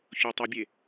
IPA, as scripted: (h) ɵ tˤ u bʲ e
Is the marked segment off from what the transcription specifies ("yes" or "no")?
yes